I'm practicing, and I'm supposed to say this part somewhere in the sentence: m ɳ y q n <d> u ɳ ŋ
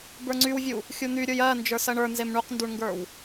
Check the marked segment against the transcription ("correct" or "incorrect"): correct